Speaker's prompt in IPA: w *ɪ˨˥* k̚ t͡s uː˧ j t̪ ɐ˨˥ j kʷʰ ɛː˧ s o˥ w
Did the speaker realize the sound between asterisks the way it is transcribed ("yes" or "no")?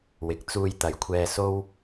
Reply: yes